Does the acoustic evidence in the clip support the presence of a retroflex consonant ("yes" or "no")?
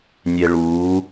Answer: yes